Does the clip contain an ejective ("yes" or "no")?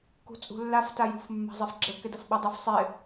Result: yes